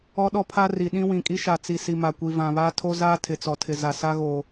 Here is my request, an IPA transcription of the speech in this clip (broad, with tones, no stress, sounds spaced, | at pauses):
ɔ˦ ɗ ɔ˦ pʰ a˦ r i˨ ɗ ĩ˦ w ĩ˨ kʼ i˦ ʃ a˨ t͡s i˨ s i˨ m a˨ kʷ i˨ v ã˨ β aː˦ tʰ o˦ z aː˦ tʰ ɪ˨ t͡s ɔ˨ tʰ ɪ˨ z a˨ s a˦ ɣ o˨